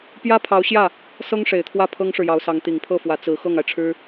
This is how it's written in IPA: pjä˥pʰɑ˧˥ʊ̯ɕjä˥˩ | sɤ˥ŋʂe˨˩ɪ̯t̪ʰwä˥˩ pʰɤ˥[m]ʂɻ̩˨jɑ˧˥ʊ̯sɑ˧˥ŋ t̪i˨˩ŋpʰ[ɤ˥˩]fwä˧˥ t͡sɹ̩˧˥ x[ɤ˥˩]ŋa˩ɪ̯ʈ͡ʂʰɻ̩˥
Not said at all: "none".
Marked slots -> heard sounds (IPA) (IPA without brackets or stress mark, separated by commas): ŋ, ɤ˥˩, ɤ˥˩